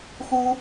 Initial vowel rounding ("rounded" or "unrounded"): rounded